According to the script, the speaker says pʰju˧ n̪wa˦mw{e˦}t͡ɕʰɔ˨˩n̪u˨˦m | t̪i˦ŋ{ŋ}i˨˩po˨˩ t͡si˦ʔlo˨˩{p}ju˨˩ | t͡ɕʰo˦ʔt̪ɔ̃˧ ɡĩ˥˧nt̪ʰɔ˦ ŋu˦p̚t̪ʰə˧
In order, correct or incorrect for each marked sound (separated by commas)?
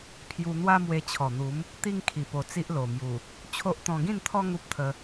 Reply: incorrect, incorrect, incorrect